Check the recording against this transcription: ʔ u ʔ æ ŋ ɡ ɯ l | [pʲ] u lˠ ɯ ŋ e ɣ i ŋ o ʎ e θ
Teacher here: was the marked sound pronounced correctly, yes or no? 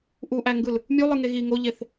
no